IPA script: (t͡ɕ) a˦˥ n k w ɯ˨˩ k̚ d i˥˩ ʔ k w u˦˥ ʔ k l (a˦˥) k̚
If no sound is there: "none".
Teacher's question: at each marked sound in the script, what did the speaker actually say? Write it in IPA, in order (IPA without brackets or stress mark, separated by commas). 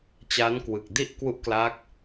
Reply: t͡ɕ, a˦˥